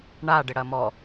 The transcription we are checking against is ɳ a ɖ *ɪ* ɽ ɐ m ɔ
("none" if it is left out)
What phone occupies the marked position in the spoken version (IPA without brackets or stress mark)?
ɪ